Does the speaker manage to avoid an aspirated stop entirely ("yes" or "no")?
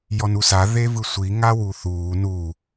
yes